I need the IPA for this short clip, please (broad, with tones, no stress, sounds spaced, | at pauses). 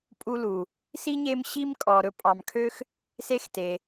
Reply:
pʼ u˦ l u˩ | s i˥ ɲ e˦ m ɕ i˦ m kʼ ɔ˨ ɾ ɵ˦ pʼ ɑ˨ m kʰ ø˥ x | s e˥ x t e˨